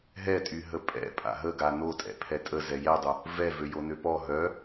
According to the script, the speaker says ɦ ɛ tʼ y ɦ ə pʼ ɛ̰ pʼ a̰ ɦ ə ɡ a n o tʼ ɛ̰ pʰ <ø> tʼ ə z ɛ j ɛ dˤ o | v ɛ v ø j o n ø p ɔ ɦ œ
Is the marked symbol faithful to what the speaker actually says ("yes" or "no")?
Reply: no